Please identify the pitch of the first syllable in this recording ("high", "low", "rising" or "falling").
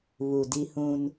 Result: low